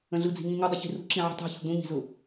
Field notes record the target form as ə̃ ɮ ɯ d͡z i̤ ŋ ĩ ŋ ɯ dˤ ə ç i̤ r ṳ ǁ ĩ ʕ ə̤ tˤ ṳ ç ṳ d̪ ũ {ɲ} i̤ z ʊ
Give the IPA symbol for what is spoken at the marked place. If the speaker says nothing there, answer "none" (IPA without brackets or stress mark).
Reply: ɲ